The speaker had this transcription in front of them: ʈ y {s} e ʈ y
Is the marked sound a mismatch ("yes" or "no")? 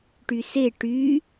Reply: no